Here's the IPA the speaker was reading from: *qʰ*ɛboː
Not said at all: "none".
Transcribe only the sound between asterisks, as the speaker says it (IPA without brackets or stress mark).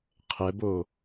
qʰ